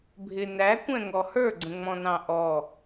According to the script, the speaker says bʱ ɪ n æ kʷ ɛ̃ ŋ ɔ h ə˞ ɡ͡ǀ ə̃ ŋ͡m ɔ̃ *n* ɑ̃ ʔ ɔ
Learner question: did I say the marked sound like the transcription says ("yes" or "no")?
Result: yes